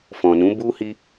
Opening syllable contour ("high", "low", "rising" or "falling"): low